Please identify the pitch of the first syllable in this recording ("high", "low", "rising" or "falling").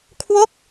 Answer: falling